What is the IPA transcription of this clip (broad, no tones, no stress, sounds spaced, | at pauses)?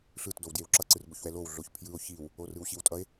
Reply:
ɬ ɯ t d o w d j e w ǁ ʌ ǀ ɯ r b o ç w ɛ l o w ɮ o ç pʰ j ɯ o̯ ç i w | o r ɯ w ɕ i w tʼ ʌ e̯